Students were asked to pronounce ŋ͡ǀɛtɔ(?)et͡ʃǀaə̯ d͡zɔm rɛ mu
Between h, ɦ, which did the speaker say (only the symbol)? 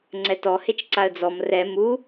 h